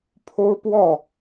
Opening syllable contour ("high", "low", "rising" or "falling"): high